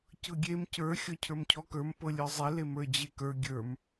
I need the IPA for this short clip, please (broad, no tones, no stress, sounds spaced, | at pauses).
c ɤ ɡʲ e m c ə˞ xʲ ɔ cʰ ə˞ m cʰ ɔ k ə˞ m p ɤ lʲ ə˞ zˤ e l e m ə˞ d͡ʑ e k ə˞ ɡʲ ə˞ m